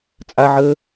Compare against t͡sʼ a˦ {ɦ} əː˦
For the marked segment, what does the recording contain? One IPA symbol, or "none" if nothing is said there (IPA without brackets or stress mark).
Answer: ʕ